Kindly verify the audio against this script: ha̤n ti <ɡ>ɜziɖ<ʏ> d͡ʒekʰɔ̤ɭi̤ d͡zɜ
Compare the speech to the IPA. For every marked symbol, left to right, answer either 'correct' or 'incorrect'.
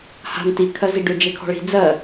incorrect, correct

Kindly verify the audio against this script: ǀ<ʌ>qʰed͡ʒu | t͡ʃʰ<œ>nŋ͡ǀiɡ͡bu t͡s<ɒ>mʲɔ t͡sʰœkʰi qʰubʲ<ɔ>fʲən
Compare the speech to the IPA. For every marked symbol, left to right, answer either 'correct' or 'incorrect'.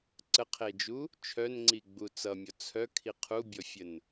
incorrect, correct, incorrect, correct

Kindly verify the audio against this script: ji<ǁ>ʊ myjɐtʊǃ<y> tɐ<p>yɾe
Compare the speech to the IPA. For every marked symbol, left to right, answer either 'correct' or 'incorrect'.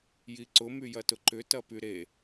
incorrect, incorrect, correct

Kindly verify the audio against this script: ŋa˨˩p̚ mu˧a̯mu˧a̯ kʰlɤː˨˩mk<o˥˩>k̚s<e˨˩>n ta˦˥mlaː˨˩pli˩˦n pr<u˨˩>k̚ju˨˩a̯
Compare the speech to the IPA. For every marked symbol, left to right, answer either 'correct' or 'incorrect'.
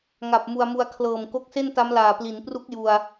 incorrect, incorrect, incorrect

